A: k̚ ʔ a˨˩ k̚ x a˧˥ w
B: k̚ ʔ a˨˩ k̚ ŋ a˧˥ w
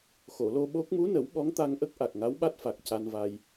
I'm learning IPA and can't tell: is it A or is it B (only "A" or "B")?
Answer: B